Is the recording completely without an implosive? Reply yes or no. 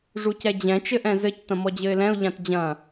yes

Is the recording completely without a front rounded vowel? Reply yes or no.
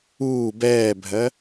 yes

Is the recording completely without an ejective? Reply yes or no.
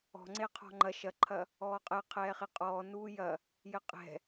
no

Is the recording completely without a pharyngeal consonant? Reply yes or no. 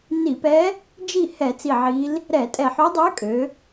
no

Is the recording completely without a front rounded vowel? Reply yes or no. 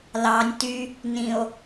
no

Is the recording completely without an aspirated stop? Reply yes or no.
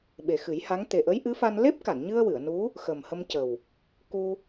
yes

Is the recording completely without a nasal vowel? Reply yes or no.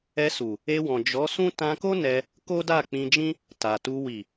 no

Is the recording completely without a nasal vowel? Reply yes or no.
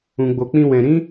no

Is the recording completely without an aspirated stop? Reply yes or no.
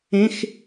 yes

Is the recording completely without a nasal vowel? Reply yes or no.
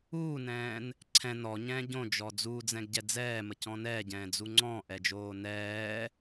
no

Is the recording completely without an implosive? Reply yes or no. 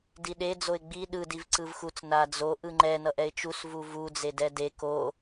no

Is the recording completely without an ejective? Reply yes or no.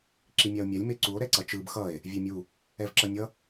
yes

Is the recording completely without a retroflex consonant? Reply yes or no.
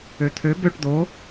no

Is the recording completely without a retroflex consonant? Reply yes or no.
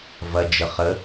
yes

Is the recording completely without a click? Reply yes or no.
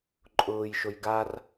no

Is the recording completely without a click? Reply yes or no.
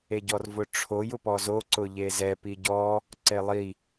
no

